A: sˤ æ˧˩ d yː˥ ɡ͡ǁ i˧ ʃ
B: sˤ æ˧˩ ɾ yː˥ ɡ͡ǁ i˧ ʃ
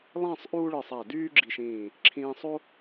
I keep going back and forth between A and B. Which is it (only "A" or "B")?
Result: A